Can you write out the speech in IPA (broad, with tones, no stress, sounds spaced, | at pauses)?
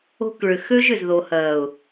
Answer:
o̤˦ k ɭ ʏ˨ x ø˦ ʒ ʏ˨ z ð o˨ h ɐː˨ ʊ̯